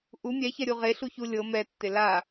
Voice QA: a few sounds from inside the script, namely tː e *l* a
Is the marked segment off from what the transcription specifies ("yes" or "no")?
no